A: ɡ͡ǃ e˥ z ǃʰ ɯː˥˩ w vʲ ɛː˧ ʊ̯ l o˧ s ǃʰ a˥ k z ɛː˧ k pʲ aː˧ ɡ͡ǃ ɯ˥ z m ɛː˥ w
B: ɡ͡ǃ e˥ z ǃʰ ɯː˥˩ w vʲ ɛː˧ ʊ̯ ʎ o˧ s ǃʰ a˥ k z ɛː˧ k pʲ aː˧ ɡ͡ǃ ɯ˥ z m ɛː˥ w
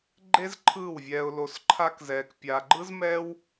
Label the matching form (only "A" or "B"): A